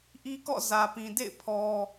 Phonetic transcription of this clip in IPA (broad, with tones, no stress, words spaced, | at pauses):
ʔi˦kɔ̰˦˨ zä˨pĩ˨ dḛ˦˨ɪ̯ pʰɔ˦